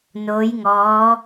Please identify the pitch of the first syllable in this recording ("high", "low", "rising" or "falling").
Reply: rising